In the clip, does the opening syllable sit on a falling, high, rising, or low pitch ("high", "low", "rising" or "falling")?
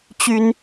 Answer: high